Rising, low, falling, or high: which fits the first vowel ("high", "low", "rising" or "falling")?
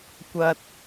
low